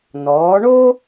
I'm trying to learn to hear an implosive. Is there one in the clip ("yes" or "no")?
no